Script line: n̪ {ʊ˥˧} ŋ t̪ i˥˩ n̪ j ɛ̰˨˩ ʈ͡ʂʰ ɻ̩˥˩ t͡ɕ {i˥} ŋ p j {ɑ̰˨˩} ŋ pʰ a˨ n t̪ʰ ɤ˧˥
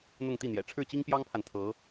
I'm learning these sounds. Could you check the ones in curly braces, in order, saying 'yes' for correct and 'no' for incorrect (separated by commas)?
yes, yes, no